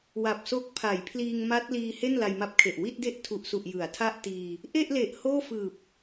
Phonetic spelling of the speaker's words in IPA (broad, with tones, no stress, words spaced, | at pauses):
wa˨˩p̚so˦˥k̚pʰa˩˦jpʰliː˧ŋ ma˦˥t̚liː˧ he˥˩nla˧jma˦˥p̚kʰe˨˩ʔ wi˥˩t̚de˥˩ʔtʰu˨˩ʔsu˨˩ʔ jɯ˩˦a̯tʰa˥˩ʔtiː˧ | ʔe˥˩ʔle˨˩ʔ hoː˥˩fɯː˨˩p̚